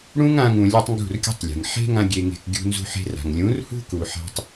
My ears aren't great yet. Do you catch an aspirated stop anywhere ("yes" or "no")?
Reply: no